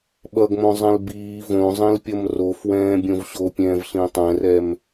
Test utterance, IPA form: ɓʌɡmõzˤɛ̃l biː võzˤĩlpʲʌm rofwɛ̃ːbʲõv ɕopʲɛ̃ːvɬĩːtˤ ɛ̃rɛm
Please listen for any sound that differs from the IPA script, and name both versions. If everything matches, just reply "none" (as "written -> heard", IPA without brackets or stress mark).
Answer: none